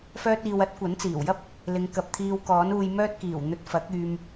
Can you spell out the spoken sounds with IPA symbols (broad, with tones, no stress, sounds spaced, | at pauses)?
f œː˧ t̚ iː˨ w ɐ˥ t̚ kʷ ɐ˨˥ n t͡s iː˨˩ w j ɐ˥ p̚ | l ɪ˨˧ ŋ k ɐ˨ p̚ t̪ʰ iː˧ w k ɔː˨˥ n uː˧ j m œː˥ t̚ k iː˨˩ w n̪ ɵ˧ t̚ f ɐ˨˥ k̚ yː˧ m